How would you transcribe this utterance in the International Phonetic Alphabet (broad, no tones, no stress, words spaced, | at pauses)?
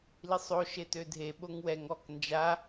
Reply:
lisˤo ʃetødʱe ɓoŋwɛŋ ɔk nd͡ʒa